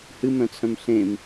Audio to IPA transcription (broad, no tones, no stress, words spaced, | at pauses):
hɨmœ̃t͡sʰœ̃m ɬẽm